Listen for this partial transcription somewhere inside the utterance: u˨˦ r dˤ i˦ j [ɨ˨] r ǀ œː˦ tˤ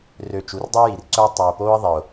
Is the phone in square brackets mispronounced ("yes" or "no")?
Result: yes